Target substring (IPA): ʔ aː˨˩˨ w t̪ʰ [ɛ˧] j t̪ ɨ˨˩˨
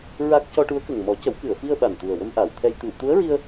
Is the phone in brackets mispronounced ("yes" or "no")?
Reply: no